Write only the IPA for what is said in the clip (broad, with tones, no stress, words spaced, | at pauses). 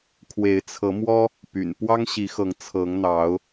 kʰwe˨˦ɪ̯t͡sʰɤ˨˦mwɔ˦ | py̰˨˩npwɑ˦ŋɕi˨˦xɤ˨˦ŋ t͡sʰɤ˨˦ŋn̪ɑ˨˦ʊ̯